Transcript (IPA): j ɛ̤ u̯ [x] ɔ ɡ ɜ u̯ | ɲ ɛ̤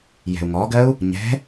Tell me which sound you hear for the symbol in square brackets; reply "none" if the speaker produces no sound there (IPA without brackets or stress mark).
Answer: ŋ